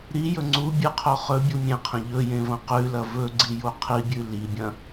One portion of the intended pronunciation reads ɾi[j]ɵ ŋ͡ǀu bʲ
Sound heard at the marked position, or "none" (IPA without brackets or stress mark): j